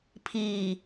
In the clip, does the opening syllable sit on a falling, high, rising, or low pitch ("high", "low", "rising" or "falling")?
low